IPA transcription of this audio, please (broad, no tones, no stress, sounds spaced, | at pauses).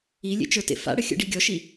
i lʲ ḛ t͡ʃ ə˞ t ḛ f a̰ ɽ ə xʲ ə̰ ɖ i ɡʲ ɔ ʃ i